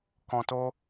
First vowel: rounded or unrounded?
rounded